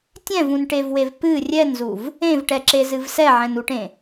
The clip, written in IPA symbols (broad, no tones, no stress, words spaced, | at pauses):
tʲɛ̃vũnʈevwev pɨ rʲɛnzuv | ẽvʈɛǁezɨv sɛʕɛ̃nuʈẽ